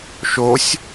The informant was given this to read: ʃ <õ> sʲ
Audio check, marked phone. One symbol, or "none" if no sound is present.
o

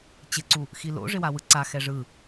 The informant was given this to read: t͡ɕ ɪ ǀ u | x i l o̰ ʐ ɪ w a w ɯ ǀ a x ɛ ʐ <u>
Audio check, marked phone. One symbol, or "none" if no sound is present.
ɯ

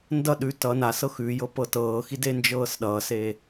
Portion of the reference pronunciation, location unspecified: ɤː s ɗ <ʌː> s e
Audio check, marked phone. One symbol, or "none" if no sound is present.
ʌː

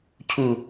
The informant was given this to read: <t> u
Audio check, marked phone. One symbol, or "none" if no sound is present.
cʰ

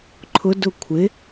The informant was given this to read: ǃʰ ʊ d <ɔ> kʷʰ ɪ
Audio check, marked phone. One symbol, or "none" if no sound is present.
ʊ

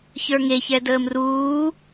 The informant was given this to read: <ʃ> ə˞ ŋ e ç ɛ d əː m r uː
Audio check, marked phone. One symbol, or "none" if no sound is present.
ç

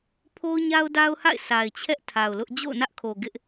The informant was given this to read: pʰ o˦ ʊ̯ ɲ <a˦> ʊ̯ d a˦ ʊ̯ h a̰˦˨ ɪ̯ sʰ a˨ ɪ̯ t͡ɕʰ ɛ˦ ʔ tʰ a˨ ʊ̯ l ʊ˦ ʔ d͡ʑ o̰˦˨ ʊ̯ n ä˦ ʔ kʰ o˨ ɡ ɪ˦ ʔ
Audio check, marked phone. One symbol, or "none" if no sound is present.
a˦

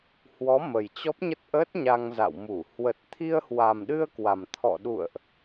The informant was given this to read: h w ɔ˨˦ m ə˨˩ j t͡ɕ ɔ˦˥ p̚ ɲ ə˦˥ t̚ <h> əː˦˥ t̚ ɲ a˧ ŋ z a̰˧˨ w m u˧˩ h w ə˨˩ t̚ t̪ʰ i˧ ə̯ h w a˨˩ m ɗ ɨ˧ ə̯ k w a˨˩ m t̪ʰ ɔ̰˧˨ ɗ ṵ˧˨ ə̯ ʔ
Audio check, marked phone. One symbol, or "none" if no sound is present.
ʔ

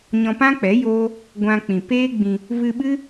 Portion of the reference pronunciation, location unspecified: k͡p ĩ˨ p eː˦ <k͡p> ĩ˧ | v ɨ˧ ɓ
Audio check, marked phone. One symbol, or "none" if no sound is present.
ɡ͡b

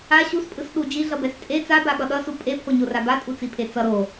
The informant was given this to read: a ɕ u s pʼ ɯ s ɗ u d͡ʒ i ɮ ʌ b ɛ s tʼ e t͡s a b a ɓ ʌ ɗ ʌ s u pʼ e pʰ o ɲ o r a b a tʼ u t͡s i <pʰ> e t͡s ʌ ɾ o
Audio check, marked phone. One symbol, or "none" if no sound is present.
pʰ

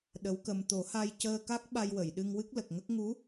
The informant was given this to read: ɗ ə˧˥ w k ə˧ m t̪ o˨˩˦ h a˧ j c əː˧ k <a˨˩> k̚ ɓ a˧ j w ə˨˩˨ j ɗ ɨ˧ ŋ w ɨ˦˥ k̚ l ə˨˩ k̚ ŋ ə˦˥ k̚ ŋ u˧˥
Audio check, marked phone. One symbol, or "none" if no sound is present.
a˦˥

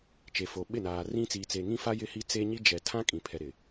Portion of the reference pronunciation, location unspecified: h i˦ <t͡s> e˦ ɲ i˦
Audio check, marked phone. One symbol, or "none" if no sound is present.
t͡s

